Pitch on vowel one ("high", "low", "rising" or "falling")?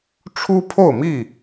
high